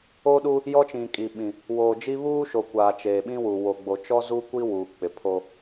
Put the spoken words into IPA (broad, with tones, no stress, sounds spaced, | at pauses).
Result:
oː˦ ɗ u˦ | j ɔ˦ t͡ʃ ĩ˨ kʼ i˨ ɓ ĩ˨ | w oː˨ d͡ʒ i˦ β uː˦ ʃ o˨ kʷ aː˨ t͡ʃ eː˨ ɓ ĩ˦ w uː˨ w o˨ ɡ͡b o˨ t͡ʃ ɔ˦ z u˦ kʷ i˦ w uː˨ k͡p ɪ˨ pʰ o˦